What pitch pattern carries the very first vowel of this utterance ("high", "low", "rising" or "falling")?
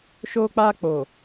high